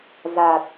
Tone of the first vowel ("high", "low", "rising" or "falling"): low